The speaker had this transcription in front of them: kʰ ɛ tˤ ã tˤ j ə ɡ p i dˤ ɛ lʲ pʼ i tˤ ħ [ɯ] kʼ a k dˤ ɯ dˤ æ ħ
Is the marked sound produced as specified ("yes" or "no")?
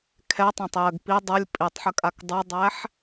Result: no